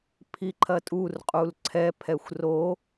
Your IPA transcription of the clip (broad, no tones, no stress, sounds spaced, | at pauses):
pʰ i ǃʰ ɐ tʼ u r qʼ u l ǀʰ ɛ pʰ ɛ xʷ r o